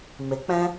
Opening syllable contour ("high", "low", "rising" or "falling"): rising